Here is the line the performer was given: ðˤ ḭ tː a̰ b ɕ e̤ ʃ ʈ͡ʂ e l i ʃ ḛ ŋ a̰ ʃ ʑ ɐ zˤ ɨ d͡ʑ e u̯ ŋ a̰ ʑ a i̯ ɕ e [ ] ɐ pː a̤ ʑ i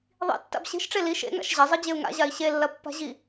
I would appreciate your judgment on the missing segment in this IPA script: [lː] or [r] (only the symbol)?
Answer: lː